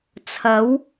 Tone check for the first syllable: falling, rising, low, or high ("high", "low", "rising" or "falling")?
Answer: rising